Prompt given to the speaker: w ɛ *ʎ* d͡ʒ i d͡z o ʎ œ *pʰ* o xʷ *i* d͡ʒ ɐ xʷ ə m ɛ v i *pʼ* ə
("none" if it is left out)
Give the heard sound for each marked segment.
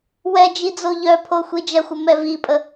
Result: none, pʰ, i, pʼ

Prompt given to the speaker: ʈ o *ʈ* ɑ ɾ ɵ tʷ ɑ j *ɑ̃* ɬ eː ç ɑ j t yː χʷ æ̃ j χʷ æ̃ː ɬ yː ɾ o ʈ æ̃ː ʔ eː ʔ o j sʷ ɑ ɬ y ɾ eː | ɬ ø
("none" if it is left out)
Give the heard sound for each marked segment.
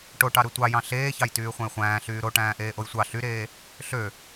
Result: ʈ, ɑ̃

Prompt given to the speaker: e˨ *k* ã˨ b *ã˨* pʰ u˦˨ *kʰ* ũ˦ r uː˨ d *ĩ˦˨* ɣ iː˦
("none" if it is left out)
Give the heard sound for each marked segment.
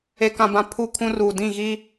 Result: k, ã˨, kʰ, ĩ˦˨

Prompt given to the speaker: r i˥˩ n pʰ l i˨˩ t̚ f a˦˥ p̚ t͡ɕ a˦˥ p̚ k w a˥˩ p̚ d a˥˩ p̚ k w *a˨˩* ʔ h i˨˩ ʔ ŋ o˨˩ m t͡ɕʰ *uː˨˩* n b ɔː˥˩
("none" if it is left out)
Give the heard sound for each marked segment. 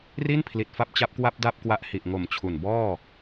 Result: a˦˥, u˨˩

